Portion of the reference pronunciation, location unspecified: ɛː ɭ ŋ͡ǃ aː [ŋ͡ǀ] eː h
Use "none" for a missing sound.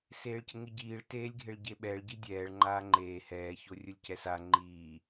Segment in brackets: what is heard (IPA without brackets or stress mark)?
ŋ͡ǃ